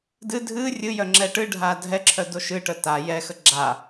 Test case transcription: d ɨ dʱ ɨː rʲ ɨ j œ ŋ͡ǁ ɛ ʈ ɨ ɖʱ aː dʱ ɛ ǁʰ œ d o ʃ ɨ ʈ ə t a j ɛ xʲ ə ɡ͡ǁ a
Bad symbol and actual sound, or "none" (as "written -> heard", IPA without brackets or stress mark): xʲ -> x